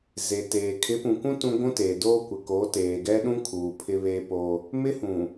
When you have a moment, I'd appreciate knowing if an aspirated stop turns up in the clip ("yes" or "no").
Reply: yes